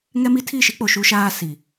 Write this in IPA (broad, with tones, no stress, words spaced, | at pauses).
ŋɛ˦mi˦ tʰi˦˨ʃi˦k͡po˨ ʃu˦ʃaː˦ si˨